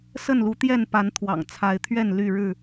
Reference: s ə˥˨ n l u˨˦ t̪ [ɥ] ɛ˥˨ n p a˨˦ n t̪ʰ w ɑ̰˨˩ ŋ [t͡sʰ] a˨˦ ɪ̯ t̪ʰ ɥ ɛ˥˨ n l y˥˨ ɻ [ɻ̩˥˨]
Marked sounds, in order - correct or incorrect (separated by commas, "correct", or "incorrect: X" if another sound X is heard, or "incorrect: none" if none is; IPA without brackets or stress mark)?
incorrect: j, correct, correct